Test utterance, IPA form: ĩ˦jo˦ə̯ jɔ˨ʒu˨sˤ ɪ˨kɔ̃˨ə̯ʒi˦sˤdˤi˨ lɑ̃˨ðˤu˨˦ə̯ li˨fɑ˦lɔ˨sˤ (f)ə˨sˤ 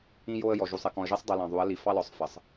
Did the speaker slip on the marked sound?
no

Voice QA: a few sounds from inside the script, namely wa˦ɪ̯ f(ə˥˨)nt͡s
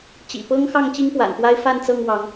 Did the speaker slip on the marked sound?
yes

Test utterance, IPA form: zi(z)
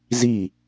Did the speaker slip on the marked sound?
yes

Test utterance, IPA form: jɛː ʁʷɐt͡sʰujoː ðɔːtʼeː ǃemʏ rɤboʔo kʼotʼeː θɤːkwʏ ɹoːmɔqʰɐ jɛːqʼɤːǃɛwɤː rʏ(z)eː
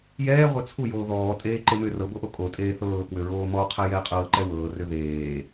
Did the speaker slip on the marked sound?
yes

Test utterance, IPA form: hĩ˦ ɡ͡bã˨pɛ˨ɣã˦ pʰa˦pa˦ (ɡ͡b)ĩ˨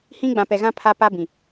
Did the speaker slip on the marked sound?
yes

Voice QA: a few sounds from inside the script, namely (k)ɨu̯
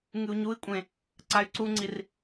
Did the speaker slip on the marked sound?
yes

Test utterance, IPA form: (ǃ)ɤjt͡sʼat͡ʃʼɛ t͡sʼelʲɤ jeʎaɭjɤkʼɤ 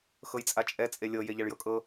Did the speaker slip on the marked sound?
yes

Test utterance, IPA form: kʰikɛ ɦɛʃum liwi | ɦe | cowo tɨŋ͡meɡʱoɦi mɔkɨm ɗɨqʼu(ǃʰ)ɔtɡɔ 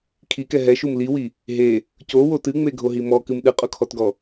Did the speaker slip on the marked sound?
yes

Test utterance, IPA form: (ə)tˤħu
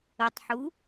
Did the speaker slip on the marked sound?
no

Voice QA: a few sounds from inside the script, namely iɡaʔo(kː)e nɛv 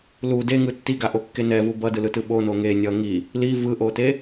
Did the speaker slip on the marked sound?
no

